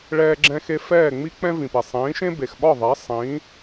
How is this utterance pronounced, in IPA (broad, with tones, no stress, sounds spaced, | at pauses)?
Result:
ɭ ɛː˧ ɡ͡ǁ ɛ̃˧ x e˧ f ɛː˥˩ ŋ͡m i˥ k͡p ɛ̃˥ v ĩ˩ p e˩ sˤ ĩː˩˥ ʃ ẽ˥ b e˩ x ɓ ɒ˥˩ ðˤ ɛ˩˥ sˤ ĩ˩˥